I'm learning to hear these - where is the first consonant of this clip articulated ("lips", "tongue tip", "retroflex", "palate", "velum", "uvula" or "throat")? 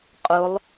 uvula